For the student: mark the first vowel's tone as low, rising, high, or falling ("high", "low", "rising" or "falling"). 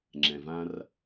low